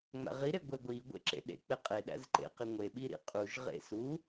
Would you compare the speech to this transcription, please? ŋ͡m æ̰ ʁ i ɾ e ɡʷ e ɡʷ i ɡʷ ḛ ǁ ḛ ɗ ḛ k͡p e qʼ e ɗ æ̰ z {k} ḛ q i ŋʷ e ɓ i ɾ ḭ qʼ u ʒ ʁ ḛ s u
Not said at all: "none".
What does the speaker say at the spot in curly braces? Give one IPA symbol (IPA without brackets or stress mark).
ǃ